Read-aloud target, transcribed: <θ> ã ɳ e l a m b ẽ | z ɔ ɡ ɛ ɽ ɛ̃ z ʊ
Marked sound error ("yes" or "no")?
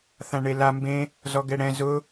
no